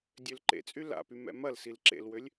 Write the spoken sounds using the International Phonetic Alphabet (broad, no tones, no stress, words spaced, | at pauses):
dʲølǃḛt͡sʼy la̰py mɛ̰mɐlsil ǁḛlwølʲ